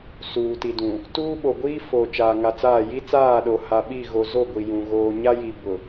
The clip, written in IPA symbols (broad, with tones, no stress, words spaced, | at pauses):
suː˨ti˨dũ˨ | tuː˦ɓo˨ɡʷiː˦ fo˨ t͡ʃaː˨ŋa˨t͡saː˦˨ ji˦t͡saː˦˨ɗo˨ ha˨ɓi˦˨ɣo˨zo˦˨ ɡʷi˨jũ˨ ɣoː˨ɲa˦ji˨ bʊ˨